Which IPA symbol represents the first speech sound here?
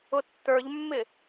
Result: ʊ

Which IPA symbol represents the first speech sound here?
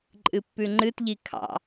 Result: ǃʼ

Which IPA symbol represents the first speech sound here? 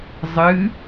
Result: zˤ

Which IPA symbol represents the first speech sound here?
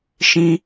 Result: ʃ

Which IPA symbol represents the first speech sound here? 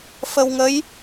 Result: f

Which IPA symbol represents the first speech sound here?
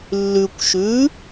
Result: lː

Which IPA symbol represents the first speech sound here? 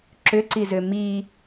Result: ǁ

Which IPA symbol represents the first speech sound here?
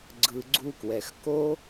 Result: ɡ͡ǀ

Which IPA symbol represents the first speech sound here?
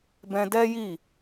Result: b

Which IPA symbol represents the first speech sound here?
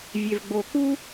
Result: vʲ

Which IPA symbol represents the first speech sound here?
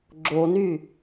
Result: ɡ͡ǁ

